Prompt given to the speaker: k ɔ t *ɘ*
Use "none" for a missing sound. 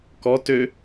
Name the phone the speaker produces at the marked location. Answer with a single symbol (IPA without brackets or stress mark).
ø